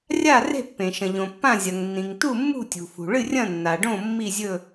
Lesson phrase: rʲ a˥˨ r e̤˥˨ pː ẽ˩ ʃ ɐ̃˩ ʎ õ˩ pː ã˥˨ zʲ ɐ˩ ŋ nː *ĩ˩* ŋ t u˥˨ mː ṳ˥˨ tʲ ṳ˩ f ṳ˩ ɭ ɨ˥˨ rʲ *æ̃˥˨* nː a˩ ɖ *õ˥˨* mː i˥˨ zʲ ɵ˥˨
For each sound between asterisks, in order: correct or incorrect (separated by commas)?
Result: correct, incorrect, correct